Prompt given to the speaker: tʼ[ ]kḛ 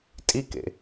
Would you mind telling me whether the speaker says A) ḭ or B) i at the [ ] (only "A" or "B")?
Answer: B